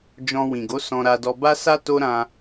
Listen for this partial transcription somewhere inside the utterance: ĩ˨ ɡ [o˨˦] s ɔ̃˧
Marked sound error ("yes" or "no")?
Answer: no